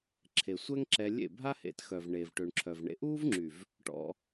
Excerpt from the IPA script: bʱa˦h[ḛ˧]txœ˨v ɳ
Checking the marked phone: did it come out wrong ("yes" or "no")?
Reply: no